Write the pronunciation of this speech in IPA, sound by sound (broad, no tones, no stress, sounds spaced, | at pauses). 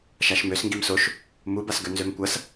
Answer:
ʃ a ʃ m ø s ŋ ɡ i m s o ʃ | m u b a s ɡ ø n z ø m kʷ ɐ s